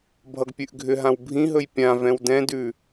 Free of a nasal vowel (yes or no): no